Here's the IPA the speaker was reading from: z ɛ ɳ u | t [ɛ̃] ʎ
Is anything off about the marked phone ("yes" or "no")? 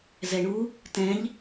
no